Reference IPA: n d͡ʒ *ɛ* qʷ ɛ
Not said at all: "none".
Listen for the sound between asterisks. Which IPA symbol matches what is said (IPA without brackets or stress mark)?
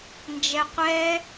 ɛ